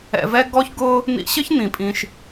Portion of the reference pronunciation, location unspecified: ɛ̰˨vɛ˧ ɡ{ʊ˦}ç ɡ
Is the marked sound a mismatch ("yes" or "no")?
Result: yes